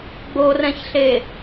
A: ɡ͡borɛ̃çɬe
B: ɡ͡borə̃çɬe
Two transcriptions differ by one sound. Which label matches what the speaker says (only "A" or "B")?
A